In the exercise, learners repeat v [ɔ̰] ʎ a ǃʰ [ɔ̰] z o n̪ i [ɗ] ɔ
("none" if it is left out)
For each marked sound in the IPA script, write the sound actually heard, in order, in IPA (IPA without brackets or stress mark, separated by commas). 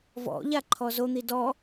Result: ɔ̰, ɔ, d